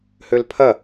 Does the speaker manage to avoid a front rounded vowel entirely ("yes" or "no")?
no